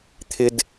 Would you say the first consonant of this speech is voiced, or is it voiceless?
voiceless